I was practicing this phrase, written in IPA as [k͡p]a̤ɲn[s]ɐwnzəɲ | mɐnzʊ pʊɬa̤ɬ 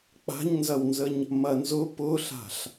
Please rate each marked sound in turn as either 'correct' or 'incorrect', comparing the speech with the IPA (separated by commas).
correct, incorrect